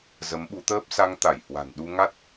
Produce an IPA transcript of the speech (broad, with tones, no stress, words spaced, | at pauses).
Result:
zə˨˦mɓu˨˦t̪əː˦˥p̚ sa˧ŋt̪a˧˩jhwa̤˨˩n ɗu˧ŋa˦˥t̚